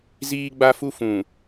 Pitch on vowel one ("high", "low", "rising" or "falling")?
high